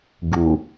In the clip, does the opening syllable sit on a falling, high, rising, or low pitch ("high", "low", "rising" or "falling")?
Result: low